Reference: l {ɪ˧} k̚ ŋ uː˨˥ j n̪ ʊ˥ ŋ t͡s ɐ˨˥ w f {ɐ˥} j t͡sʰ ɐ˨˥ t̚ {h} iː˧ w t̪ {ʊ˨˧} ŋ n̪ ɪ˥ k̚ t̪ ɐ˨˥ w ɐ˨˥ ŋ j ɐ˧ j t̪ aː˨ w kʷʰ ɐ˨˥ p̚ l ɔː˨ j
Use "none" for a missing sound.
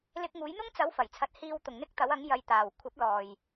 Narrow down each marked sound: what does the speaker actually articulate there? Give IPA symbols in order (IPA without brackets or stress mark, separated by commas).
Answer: ɪ˧, ɐ˨˩, h, ʊ˨